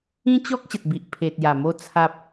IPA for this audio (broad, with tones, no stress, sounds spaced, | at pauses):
ĩ˦ t͡ɕ ɔ˦ k̚ ɕ ə˨ t̚ b i˨ ʔ pʰ e˨ t̚ j a˨˩ m o˧ t͡sʰ a˦ p̚